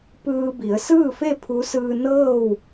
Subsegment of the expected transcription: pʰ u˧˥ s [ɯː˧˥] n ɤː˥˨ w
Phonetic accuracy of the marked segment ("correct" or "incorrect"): incorrect